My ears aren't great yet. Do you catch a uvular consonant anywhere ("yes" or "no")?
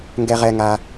yes